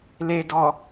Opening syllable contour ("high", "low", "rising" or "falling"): low